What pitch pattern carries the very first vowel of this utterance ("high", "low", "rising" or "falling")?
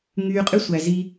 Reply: low